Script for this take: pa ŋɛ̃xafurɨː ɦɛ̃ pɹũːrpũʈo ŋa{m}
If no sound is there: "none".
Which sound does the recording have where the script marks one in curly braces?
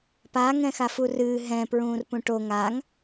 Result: ŋ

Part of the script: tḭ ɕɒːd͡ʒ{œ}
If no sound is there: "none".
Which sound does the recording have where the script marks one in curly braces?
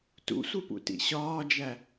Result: æ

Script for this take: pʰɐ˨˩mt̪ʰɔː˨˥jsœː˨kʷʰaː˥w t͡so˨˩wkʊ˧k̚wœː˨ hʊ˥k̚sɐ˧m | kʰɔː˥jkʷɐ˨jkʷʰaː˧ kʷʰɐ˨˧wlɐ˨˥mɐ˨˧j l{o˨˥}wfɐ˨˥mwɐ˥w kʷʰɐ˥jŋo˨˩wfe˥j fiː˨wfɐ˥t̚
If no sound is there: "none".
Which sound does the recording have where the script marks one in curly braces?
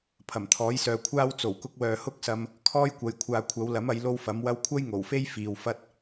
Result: o˥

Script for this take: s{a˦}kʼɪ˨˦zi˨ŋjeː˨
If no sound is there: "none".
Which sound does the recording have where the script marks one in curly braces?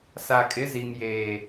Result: a˨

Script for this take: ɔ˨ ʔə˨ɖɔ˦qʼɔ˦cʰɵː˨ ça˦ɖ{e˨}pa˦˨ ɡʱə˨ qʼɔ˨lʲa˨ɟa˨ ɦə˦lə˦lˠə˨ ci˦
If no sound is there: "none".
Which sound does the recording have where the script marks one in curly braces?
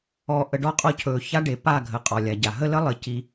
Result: e˨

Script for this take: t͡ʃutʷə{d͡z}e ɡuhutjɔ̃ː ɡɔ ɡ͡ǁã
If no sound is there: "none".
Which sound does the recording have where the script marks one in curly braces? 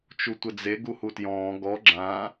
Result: d͡z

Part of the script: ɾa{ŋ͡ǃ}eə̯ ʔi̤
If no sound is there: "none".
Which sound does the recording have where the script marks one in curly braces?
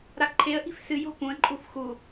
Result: ǃʰ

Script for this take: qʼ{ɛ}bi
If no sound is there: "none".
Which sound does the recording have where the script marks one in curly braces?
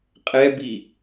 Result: ɛ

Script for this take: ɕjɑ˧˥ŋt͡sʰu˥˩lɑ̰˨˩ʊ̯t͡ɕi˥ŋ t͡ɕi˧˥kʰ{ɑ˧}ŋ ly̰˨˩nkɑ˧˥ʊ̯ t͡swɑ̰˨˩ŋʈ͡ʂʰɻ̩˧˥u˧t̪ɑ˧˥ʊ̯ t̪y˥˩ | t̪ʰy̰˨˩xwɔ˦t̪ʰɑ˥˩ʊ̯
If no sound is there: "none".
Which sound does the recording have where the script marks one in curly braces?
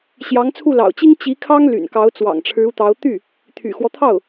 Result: ɑ˥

